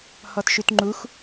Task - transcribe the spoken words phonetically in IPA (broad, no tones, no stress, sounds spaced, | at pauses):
h ɔ t ʃ y t ŋ͡ǃ u x